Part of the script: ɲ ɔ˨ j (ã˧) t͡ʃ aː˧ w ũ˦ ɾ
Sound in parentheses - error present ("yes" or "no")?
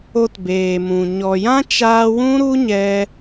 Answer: yes